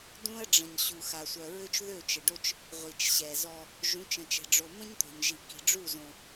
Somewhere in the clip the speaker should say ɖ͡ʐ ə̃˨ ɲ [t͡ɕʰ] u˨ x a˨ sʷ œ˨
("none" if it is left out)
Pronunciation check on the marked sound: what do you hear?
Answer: ɕ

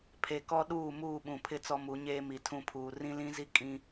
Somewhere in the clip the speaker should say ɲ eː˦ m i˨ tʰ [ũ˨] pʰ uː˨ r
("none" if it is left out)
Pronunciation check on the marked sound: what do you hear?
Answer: ũ˦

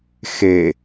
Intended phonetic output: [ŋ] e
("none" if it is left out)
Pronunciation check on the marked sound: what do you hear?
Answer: x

